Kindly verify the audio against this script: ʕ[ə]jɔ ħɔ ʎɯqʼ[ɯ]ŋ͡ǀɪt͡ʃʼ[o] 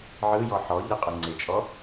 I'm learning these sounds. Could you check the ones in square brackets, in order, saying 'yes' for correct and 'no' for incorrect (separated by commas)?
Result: no, no, no